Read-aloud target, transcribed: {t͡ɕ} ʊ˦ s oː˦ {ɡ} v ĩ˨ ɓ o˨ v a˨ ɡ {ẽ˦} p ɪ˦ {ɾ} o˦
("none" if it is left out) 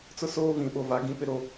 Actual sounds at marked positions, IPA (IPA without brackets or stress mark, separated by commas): t͡s, none, ĩ˦, ɾ